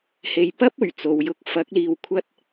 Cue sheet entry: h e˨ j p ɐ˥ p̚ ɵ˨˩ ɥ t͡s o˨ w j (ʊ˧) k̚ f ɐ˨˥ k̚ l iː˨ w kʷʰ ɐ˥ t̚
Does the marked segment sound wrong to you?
no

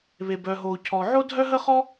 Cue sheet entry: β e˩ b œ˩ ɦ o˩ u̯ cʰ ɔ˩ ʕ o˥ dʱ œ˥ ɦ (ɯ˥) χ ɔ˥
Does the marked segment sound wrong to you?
yes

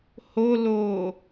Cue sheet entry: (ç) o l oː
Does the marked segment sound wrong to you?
yes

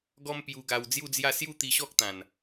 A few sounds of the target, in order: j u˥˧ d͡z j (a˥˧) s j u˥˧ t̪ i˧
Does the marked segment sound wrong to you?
no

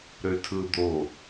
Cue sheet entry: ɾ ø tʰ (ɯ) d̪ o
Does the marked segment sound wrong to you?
no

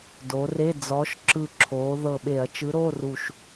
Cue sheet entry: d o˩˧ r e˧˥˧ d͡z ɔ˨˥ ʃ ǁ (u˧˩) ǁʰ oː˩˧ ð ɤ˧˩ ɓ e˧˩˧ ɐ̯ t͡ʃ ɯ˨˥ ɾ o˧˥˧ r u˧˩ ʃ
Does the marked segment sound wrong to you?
yes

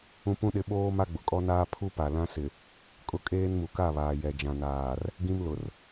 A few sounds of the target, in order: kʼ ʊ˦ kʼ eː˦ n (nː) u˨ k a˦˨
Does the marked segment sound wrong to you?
yes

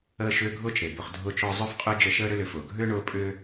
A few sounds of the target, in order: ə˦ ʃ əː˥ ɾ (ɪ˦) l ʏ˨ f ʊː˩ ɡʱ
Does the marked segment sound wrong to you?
yes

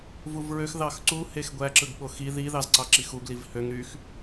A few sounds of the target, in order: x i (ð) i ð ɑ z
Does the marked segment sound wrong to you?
no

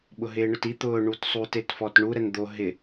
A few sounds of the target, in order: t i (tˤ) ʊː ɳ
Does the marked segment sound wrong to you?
yes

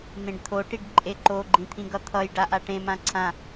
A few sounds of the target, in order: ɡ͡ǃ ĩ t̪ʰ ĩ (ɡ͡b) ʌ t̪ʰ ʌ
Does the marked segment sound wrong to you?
yes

